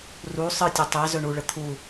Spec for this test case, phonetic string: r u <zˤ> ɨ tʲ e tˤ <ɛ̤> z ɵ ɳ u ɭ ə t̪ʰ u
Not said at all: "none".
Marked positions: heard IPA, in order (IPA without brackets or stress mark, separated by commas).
sˤ, ɛ